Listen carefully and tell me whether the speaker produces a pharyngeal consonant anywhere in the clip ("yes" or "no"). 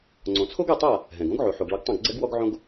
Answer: yes